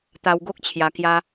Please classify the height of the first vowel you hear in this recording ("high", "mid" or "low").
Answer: low